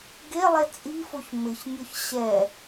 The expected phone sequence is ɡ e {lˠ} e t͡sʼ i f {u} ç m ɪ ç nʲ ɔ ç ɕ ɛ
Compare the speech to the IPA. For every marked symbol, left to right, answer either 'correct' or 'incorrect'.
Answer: correct, incorrect

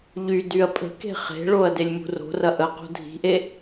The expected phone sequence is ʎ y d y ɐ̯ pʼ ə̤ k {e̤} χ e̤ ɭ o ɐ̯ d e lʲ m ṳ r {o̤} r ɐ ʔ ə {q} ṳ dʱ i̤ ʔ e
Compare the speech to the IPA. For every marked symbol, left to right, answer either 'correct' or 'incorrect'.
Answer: correct, correct, correct

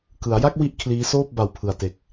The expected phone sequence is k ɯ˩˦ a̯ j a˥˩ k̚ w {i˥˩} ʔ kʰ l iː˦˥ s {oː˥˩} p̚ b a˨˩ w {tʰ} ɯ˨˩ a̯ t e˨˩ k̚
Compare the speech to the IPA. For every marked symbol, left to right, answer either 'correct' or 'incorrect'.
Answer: correct, correct, incorrect

